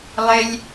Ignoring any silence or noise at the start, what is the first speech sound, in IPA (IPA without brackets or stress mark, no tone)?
lˠ